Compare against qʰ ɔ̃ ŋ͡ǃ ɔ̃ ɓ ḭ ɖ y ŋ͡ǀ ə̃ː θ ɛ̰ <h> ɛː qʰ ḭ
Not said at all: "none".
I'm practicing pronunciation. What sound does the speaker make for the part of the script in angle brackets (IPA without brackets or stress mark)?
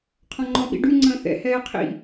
h